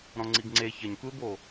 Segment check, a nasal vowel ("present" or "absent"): present